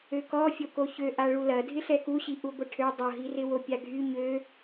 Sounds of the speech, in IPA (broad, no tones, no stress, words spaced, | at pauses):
økɔfʲo koçø ʔaɭulɐ dʱɪɬɛkuɕi ʔuɡʷɪʈʰø dˤoɦirɪwo pʲaɡʱy ɲø